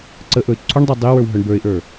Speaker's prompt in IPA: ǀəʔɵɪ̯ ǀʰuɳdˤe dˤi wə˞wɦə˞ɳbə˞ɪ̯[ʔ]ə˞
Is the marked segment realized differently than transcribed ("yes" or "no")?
no